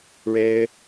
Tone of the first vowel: high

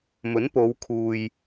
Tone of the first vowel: rising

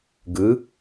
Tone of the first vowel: rising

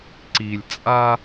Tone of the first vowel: low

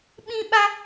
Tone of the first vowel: high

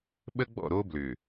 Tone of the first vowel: high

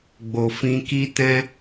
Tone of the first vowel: low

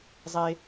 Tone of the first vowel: low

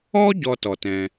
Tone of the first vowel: high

